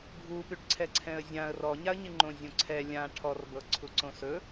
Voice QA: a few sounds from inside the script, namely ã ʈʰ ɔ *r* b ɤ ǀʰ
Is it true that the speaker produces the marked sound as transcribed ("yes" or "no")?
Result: yes